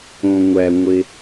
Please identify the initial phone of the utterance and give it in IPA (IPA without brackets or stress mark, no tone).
õ